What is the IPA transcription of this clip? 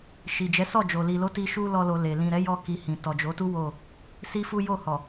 ʃ i˨ d͡ʒ ɛ˨˦ s ɔ˦˨ d͡ʒ o˨ l i˨ l o˨˦ t i˧ ʃ u˦ l ɔ˧ l o˨ l e˨ l ĩ˨ ɾ ɛ˨˦ j ɔ˦ k i˧ h ĩ˨ t ɔ˨ d͡ʒ o˨˦ t u˦ w o˦˨ | s i˦ f u˦ j o˦˨ h ɔ˨

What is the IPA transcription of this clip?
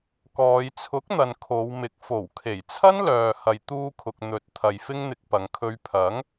k ɔː˨˧ j t͡sʰ ʊ˨˥ k̚ n̪ ɐ˨ n kʰ o˨˧ w m ɪ˨˥ k̚ f o˨˩ w kʰ e˨˩ j t͡sʰ ɐ˥ n l œː˨ h ɐ˨ j t̪ uː˧ kʰ ʊ˨ k̚ n̪ ɵ˨˥ t̚ t̪ʰ ɐ˨ j f ɪ˥ ŋ n̪ ɪ˧ k̚ p ɐ˨˧ ŋ kʰ ɵ˧ ɥ pʰ ɐ˨˥ ŋ

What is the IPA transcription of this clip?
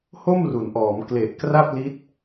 h o˥˩ m r u˩˦ n ʔ ɔː˩˦ m k l e˨˩ ʔ k r a˥˩ p̚ l i˦˥ t̚

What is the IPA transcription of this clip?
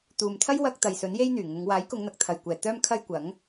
t̪ uː˨ m t̪ʰ ɐ˥ j w ɐ˧ k̚ t̪ ɐ˨ j s ɵ˨˥ n j e˥ j n̪ yː˨˩ ŋ ʊ˨˧ ŋ w aː˨˥ j k ʊ˨˧ ŋ n̪ ɐ˨˥ k̚ t̪ʰ ɐ˨ j kʷ ɛː˨ t̪ œː˥ m kʰ ɐ˥ j kʷ ɐ˨˥ ŋ

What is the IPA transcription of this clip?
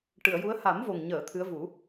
ʈ ɨ˨˩˨ ə̯ j u˧˥ ə̯ h a˨˩˦ m v o˨˩ ŋ ɲ əː˨˩˨ t̪ʰ ɨ˧˥ ə̯ v u˨˩˦

